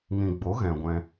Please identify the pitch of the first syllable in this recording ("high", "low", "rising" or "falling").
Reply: low